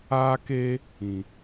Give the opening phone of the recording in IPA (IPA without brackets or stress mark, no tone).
aː